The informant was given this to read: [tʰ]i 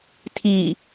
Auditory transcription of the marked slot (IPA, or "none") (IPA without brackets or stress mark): tʰ